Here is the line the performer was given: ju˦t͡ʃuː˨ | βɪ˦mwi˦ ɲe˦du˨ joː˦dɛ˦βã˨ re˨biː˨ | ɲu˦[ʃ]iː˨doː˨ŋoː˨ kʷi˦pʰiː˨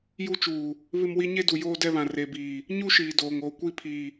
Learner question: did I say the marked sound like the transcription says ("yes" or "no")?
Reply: yes